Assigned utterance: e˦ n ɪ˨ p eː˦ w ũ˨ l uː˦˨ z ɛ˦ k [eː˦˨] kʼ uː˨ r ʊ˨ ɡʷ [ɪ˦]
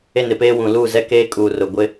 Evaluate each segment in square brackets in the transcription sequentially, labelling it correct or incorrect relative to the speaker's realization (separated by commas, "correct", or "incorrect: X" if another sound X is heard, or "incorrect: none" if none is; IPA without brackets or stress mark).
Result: incorrect: eː˦, correct